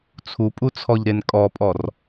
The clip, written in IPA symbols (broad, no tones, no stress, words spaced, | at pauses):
t͡sʰupʼut͡sʰɔʎɾen kʼɔpʼɔr